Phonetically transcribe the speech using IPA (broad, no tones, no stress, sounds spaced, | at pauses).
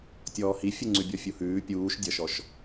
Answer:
tʲ ɔː h i fʲ u ŋ͡ǀ ʉ bʲ ɔ fʲ u h ʉː pʲ uː ʃ dʲ ʌ ʃ ɔ ʃ